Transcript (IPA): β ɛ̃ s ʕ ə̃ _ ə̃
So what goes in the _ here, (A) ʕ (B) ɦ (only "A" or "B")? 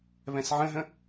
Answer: B